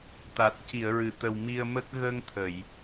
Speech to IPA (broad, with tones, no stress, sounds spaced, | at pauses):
t̪ a˨˩ t̚ c i˨˩˨ ə̯ ɹ ɨ˨˩˨ t̪ ə˨˩ w m i˧ ə̯ m ə˦˥ k̚ ɣ ə˧ ŋ t̪ʰ ə˨˩˨ j